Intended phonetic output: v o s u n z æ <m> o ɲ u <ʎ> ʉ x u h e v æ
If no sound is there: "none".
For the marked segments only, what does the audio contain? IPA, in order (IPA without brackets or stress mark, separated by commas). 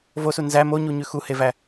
m, ɲ